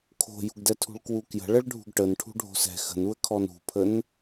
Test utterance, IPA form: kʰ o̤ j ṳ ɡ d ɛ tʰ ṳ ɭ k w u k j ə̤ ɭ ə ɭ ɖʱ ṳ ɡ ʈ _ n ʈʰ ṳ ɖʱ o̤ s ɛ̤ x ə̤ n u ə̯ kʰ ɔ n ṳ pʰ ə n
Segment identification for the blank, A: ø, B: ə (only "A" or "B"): B